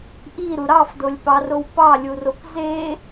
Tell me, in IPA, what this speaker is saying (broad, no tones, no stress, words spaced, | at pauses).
ʔiɾu ɾɑfdolʲpɑrow pɑlʲurokʷ ze